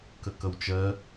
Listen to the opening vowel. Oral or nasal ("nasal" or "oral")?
oral